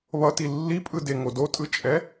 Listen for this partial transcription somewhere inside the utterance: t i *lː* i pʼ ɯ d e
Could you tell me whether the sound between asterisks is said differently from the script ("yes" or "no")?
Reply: no